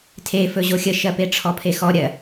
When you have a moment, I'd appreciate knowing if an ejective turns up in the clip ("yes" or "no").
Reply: no